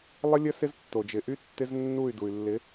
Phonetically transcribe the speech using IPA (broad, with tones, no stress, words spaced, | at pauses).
lˠə˦lʲə˦ sɪ˦ztːo˨ d͡ʒɪ˨ʔy˦tːɪ˦z nːu˦˨y̯ du˨y̯lːɪ˨˦